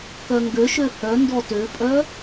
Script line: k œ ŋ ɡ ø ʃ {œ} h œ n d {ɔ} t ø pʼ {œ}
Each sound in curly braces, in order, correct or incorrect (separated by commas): incorrect, correct, correct